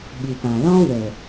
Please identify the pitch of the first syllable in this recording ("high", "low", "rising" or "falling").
low